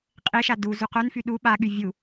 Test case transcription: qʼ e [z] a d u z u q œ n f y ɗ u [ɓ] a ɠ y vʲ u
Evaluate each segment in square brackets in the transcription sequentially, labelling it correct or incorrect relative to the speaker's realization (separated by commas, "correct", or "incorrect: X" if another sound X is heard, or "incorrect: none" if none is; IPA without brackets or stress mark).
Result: incorrect: ʃ, correct